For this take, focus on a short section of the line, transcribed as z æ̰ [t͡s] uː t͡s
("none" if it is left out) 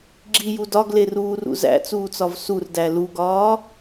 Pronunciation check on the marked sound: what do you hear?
t͡s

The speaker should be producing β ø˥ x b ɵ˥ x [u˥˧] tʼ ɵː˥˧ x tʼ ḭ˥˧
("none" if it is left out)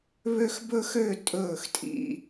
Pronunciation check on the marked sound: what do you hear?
ø˥˧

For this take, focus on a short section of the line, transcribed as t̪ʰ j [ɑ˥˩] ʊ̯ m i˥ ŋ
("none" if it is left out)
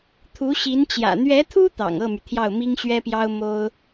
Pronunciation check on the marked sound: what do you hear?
ɑ˥˩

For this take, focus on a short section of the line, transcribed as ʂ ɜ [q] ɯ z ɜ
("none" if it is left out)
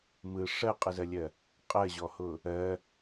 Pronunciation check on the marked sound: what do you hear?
qʼ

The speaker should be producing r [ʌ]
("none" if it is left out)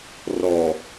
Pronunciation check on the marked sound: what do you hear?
ɔ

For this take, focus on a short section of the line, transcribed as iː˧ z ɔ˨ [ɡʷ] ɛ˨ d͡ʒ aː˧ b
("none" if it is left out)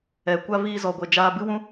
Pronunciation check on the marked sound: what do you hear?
ɡʷ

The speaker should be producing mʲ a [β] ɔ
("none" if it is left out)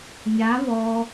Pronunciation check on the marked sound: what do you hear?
β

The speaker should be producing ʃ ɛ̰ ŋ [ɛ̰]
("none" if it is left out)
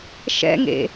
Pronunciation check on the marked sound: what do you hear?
ḛ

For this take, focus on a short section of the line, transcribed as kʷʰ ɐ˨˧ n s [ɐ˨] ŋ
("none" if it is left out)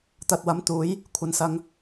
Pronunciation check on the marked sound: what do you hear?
ɐ˨˧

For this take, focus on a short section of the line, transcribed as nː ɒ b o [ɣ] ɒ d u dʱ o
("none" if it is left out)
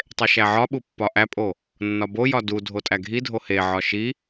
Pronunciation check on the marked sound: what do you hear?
j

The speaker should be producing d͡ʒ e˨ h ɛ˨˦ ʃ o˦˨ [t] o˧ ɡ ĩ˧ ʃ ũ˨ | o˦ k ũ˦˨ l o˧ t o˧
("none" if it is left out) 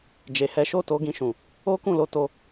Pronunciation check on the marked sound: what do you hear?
t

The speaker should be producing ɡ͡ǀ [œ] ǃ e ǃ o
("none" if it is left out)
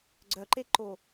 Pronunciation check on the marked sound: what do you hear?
œ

